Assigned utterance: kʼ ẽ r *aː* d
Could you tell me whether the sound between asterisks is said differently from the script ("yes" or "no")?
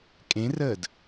yes